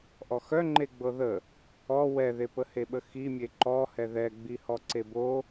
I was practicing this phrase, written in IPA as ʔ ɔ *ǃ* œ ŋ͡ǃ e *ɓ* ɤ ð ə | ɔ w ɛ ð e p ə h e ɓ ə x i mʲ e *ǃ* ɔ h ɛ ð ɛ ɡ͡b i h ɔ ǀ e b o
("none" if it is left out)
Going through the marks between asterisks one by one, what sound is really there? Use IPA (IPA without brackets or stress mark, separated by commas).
x, ɡ͡b, ǃ